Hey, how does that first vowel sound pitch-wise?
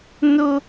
high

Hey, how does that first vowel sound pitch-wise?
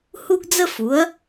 high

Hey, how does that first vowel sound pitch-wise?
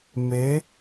rising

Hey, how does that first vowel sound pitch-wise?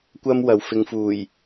high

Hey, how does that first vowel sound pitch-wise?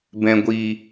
low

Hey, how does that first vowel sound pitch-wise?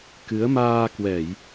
rising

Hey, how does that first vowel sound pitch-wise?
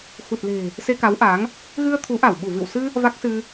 low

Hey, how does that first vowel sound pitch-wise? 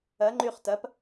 rising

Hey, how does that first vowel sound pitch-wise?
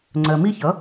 low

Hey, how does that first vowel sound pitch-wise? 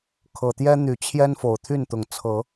low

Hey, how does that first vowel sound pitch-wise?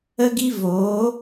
high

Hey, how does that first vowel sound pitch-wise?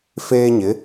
high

